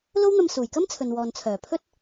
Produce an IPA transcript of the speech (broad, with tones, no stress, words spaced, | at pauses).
lo˥wn̪ɐ˧m suː˨˩jkɐ˥m t͡sʰɵ˨nwɔː˨n t͡sʰœː˨˩pʰɵ˥t̚